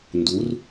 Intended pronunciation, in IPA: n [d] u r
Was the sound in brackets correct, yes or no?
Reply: yes